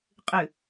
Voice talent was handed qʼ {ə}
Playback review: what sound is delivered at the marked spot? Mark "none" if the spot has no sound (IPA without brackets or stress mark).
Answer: ɨ